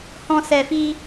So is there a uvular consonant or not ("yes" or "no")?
no